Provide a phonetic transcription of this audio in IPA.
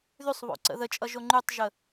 ð y sˤ β o̰ ǀ ə̰ ð ə t͡ʃʼ ʌ ʒ o ŋ͡ǃ y tˤ ʒ ə

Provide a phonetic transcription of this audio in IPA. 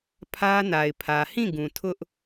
pʰ ä˦ n a˨ ɪ̯ pʰ ä˨ h ĩ˦˨ ɡ ũ˨ tʰ ʊ˦ ʔ

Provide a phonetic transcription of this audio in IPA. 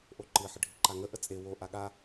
ʔ o ǃ ɨ ħ ə ɖʱ i ǃ a ŋ ə ʔ ə t͡sʼ e w o ʔ a ɠ a

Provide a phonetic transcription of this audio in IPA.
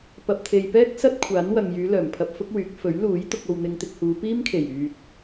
p ɐ˨ p̚ t̪ʰ e˨ j p ɛː˥ k̚ s ɐ˥ t̚ kʷʰ aː˨˥ n w ɐ˨ ŋ j yː˨˧ l œː˨˩ m pʰ ɐ˧ p̚ f ʊ˥ k̚ w yː˨˥ k̚ f ɵ˨˥ ɥ l uː˨˥ j t̪ ʊ˧ k̚ o˨ w n̪ ɪ˧ ŋ t̪ ɪ˧ k̚ h uː˨˧ p iː˥ m kʰ e˨˩ j yː˨ t̚

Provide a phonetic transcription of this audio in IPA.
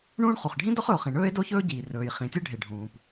ɳ ũː˥ ɳ χ u˩ χ ɖʱ ĩ˥ d ɔ˥ χ ɵ˩ o̯ χ ĩ˩ ɳ ɵː˥ e̯ d o˥ ç ɵː˥ ɟ iː˩ r ɵː˩ j χ ĩ˩ tʲ ɯ˥ ɖʱ e˩ ɖʱ ũː˩ p

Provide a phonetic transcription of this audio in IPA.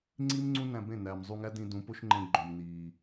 ŋ͡ǀ i˦ m ŋ͡ǀ ũ˦ n æ̃˧ b ẽ˦˨ n æː˨ m zˤ u˧ ŋ æ˦ d ĩ˧ d ũ˨˦ p o˦ ʃ ŋ͡ǃ ẽ˧ ɡ͡ǃ õ˨ m n iː˨

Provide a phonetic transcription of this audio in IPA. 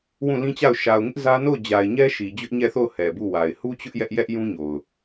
w ũ˦˨ l ĩ˦ t͡ɕ a˦˨ ʊ̯ ʃ a˨ ʊ̯ ŋ ɪ˦ ʔ z ä˦ n o˦˨ ʊ̯ d͡ʑ a˨ ɪ̯ ɲ ɛ˦ ʃ i˨ d͡ʑ ʊ˦ ʔ ɲ ɛ˦˨ θ o˦˨ ʊ̯ h ɛ˨ b u˦˨ w a˨ ɪ̯ h u˦ t͡ɕ ʊ˦ ʔ j ɛ˦ ʔ j ɛ˦ ʔ j ũ˦ ɲ o˨ ʊ̯

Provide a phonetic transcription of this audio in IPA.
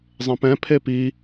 zˤ ẽ p ɛ̃ pʰ e p i

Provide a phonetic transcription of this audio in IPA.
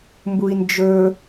m b u i̯ n d͡ʒ ɵ

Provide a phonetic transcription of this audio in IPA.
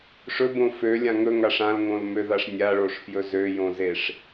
ʂ ɵ b õ f ø lʲ ã ŋ ɵ ŋ a ʂ ã l ŋ õ l m ø ð a ʂ nʲ a ɭ o ʂ f j ɵ z ø j õ z e ʂ

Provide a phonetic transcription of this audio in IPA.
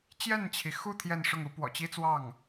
t͡ɕ j ɛ˥˩ n t͡ɕʰ i˩ x u˥˧ t̪ʰ j ɛ˥˧ n ʂ ʊ˥˩ ŋ u˧˥ p w ɔ̰˨˩ t͡ɕ i˥ t͡s w ɑ˥˩ ŋ

